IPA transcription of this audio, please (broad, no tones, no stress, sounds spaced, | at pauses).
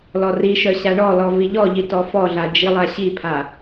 l ɔ r i ʃ œ ɕ a ɳ ɔ l ɔ v i ʎ ɔ ʎ i t ɔ f ɔ ɮ a d͡ʒ i lˠ a ɕ i pʰ a